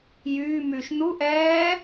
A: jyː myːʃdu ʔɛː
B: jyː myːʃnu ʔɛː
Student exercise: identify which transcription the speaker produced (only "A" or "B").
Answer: B